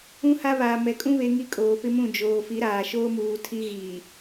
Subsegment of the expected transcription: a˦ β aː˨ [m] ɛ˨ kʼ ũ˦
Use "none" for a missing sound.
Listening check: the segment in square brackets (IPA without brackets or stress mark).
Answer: m